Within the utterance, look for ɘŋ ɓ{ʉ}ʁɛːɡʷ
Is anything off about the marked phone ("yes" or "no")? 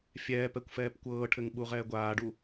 yes